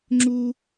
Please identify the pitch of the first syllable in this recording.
high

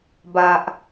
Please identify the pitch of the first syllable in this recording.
low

